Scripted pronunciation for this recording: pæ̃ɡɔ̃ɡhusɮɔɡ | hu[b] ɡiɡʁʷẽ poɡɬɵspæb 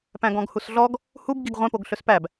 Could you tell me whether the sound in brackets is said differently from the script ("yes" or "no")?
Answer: no